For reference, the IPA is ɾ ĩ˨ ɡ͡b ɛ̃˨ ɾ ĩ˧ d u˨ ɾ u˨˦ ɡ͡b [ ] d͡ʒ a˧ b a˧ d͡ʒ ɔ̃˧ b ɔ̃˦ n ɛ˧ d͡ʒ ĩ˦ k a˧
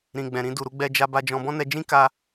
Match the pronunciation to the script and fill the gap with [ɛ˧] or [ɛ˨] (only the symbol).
ɛ˧